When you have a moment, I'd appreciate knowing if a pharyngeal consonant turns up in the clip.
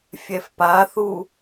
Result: no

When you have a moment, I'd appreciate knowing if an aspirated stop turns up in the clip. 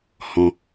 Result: no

